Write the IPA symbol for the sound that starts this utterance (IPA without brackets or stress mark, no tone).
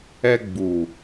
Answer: ɛ